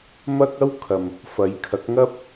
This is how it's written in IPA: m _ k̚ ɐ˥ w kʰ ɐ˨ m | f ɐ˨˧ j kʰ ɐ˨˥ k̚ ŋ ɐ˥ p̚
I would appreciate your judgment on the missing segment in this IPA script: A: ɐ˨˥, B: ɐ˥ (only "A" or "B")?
B